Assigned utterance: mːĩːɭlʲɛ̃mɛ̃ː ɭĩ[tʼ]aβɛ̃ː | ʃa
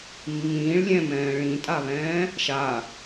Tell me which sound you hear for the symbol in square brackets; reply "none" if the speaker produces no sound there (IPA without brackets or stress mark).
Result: tʼ